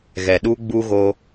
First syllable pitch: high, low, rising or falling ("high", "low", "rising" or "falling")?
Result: low